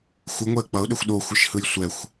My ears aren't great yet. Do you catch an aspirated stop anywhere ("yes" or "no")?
no